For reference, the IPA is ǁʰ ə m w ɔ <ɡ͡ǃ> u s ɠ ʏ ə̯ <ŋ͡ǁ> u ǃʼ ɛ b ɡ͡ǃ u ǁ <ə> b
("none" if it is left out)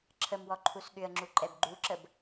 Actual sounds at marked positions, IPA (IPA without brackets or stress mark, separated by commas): ǃʰ, ŋ͡ǁ, ə